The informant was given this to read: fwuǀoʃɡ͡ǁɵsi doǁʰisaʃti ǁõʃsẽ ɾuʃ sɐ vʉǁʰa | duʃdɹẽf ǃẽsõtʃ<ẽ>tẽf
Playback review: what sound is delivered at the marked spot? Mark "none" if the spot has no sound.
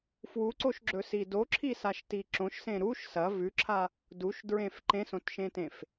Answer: ẽ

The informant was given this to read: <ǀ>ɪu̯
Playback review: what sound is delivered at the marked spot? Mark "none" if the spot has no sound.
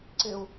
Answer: ǀ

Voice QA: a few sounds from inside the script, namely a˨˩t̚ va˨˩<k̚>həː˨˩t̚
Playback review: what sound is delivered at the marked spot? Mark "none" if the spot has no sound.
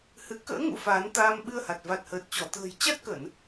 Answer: t̚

